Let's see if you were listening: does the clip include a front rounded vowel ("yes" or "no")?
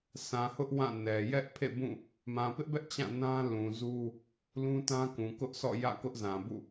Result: no